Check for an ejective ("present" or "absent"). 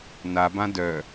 absent